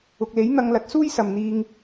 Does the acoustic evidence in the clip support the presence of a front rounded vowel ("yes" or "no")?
no